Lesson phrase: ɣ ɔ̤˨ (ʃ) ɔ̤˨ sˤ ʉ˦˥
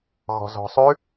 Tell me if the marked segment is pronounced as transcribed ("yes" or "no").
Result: no